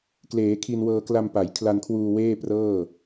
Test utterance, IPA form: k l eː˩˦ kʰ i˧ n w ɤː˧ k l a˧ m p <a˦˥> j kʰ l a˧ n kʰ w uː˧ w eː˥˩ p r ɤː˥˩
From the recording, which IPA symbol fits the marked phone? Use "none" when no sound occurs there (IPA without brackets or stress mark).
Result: a˩˦